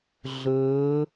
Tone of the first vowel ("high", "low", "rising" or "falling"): rising